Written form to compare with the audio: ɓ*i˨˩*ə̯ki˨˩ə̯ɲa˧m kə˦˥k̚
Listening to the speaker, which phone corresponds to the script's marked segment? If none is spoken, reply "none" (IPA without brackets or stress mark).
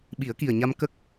i˨˩˦